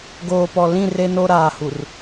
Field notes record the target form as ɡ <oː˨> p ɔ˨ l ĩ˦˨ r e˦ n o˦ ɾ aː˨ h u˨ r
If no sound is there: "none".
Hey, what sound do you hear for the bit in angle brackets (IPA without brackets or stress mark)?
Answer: oː˨